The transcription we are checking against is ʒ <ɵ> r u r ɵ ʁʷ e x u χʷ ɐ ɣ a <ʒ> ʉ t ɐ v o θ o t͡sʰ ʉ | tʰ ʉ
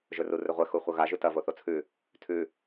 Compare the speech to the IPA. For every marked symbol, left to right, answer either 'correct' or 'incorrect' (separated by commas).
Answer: correct, correct